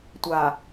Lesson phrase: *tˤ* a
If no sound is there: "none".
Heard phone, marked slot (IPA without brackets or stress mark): tʷ